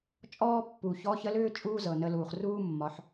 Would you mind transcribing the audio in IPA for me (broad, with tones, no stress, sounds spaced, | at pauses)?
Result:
t͡ʃʼ ɔː˥ pː u˩ ç ɔ˧˥ ç ə˧˥ l ʏː˥ t͡ʃʼ uː˥ z ɤ˩ n ə˧ l uː˩ χ r uː˥ mː ɒ˩˧ ħ